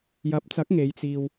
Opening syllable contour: rising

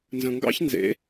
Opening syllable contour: low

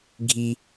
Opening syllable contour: high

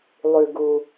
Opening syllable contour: low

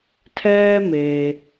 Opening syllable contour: high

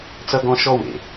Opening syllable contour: high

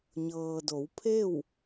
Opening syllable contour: low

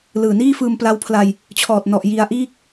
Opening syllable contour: low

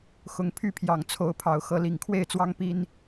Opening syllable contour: rising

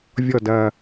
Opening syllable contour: low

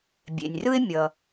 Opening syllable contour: low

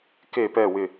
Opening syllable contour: falling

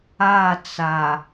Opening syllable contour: falling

